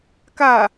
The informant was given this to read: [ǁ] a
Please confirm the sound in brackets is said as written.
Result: no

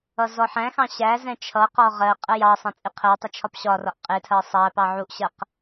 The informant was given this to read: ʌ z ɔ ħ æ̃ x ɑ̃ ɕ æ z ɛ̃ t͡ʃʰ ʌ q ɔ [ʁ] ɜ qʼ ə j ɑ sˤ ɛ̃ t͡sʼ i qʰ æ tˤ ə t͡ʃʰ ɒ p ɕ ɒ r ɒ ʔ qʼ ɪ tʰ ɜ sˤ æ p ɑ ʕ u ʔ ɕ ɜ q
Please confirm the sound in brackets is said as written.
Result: yes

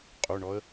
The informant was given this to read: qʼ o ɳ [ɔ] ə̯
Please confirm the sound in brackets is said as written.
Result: yes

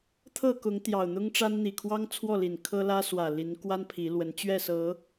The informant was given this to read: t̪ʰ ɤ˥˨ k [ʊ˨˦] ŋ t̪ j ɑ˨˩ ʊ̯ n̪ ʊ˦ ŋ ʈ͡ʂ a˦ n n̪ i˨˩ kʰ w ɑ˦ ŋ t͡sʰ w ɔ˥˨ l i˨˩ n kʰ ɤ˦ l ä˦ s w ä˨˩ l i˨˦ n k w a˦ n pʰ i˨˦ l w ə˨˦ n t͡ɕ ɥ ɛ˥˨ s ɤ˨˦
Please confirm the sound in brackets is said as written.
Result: yes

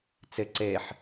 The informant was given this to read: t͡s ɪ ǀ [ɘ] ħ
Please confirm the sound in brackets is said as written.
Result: no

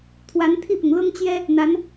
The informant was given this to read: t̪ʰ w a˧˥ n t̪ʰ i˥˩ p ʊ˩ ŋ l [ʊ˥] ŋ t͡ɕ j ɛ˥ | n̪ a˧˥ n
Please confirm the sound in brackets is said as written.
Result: yes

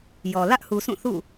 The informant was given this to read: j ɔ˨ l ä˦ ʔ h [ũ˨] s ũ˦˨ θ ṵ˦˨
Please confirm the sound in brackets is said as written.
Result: no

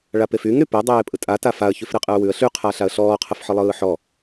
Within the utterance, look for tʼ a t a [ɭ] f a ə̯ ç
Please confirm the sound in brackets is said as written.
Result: no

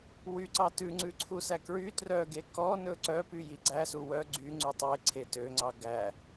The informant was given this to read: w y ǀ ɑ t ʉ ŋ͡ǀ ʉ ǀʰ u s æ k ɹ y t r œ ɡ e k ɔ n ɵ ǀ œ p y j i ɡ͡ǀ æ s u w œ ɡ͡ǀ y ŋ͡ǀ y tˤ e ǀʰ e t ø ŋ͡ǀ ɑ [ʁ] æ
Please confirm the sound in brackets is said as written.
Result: no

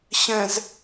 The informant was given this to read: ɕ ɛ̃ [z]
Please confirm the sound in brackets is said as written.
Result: yes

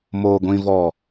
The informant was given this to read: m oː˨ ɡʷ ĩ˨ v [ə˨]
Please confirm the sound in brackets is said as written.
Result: no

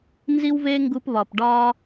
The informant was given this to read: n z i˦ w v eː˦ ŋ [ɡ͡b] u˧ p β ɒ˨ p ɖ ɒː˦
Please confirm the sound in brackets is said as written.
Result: no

